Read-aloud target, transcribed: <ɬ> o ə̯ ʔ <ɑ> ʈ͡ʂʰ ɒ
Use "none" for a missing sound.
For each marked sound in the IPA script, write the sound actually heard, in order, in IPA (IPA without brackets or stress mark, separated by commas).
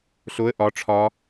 ɬ, ɒ